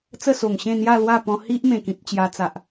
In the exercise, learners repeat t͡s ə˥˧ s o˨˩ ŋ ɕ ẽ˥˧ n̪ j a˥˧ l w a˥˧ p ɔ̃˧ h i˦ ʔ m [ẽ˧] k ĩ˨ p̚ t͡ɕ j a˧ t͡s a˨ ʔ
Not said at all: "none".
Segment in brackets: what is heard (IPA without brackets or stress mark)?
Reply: ẽ˨˩